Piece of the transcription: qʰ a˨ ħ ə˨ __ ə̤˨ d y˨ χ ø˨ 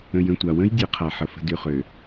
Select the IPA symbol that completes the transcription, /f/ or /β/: f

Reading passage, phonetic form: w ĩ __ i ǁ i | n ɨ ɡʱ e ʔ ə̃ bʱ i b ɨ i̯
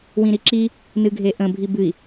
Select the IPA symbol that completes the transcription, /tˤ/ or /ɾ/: ɾ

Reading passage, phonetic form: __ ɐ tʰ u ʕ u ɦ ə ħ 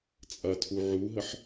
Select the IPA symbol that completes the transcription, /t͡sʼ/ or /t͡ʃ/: t͡sʼ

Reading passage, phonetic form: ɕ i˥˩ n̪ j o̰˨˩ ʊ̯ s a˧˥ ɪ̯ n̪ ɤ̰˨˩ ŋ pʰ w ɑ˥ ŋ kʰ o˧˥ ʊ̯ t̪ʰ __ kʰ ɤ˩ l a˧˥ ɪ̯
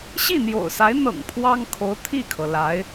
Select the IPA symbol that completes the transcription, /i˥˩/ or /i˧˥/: i˥˩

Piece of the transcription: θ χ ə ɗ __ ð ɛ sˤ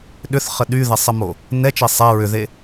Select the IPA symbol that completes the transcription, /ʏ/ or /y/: y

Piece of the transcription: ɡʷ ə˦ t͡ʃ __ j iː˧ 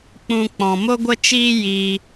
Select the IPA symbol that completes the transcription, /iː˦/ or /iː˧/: iː˦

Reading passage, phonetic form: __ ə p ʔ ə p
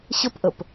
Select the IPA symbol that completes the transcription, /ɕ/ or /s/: ɕ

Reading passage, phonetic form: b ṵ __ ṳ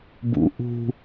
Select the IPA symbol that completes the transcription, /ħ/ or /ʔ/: ʔ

